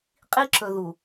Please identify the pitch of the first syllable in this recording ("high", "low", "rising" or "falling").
high